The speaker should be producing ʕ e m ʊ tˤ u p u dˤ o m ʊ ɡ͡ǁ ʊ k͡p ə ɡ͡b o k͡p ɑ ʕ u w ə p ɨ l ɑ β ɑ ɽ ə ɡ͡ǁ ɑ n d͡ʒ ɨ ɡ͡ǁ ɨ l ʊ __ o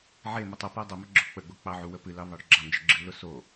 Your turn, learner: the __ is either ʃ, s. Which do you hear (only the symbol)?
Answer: s